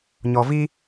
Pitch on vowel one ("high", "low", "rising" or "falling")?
low